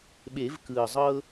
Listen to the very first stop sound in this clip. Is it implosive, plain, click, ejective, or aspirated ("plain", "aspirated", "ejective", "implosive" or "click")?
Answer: implosive